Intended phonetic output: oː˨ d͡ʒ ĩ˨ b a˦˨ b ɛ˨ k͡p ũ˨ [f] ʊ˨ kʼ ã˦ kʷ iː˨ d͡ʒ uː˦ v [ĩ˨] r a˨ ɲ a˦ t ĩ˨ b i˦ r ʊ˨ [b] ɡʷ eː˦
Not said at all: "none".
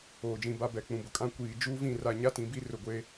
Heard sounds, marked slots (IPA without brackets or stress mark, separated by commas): b, ĩ˦˨, none